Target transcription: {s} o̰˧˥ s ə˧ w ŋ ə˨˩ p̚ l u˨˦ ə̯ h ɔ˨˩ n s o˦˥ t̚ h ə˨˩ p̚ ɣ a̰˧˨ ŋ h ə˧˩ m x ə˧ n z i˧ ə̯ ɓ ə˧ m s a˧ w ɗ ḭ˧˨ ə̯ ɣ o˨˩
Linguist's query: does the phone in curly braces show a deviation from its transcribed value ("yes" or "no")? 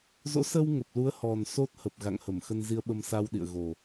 yes